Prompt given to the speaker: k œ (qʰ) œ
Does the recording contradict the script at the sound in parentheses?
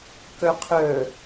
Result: no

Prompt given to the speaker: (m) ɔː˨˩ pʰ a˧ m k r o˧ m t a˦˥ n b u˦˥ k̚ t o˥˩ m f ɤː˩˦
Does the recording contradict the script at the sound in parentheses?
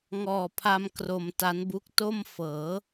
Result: yes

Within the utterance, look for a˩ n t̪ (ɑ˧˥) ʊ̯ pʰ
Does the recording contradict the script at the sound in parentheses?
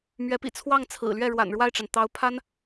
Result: no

